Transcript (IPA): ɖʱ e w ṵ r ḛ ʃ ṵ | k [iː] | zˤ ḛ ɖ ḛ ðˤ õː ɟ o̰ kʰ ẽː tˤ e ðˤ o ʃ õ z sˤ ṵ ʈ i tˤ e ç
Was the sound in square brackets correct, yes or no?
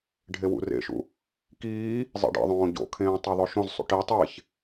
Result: yes